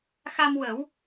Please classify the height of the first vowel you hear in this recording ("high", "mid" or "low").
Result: low